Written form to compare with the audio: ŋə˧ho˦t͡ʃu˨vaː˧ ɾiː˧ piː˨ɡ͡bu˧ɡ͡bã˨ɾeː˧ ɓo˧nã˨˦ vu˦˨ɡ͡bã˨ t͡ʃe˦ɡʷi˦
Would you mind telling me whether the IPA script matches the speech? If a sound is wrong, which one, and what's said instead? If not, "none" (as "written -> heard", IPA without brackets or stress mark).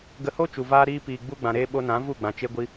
ŋ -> ɡ